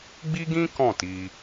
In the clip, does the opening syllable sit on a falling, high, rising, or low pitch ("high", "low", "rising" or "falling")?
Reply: high